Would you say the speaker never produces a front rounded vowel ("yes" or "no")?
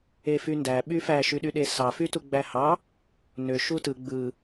no